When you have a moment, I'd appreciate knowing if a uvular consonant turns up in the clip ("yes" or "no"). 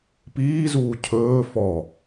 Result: no